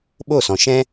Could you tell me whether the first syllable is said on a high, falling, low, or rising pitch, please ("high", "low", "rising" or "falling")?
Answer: falling